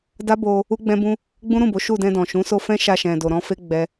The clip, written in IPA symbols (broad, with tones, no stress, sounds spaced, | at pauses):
d a˦ b o˧ | u˦ ɡ͡b ɛ̃˦ b ũ˦ | ɡ͡b ũ˦ ɾ ũ˦˨ b o˨˦ ʃ u˦˨ d ɛ̃˧ d ɔ̃˨ ʃ ũ˨˦ s o˧ f ɛ̃˦ ʃ a˧ ʃ ɛ̃˨ d o˨ ɾ ɔ̃˧ f e˦ ɡ͡b ɛ˦